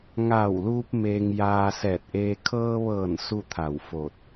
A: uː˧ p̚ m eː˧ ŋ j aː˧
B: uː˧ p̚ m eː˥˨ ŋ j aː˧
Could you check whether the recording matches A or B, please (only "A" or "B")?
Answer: A